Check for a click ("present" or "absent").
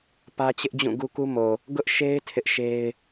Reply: absent